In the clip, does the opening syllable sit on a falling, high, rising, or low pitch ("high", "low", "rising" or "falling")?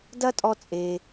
high